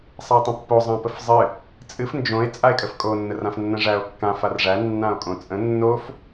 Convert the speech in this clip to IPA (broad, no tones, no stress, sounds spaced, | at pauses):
sˤ a e̯ tˤ ə̃ pː o zˤ ã p ə f zˤ ɨ | t͡sʼ ɨ f n d͡ʒ õ e̯ t͡sʼ a e̯ kʼ ə f kʼ o nː ə r ã f nː ə̃ ʐ æ o̯ kː ã f a r ʐ æ nː ã o̯ kʼ õ t͡sʼ ə̃ nː o f